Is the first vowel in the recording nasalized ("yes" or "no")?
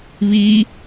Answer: no